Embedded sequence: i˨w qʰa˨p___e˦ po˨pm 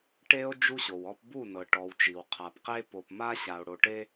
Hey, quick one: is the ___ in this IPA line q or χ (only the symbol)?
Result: q